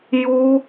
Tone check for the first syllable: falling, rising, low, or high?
high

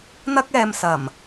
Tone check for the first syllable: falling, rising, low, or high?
high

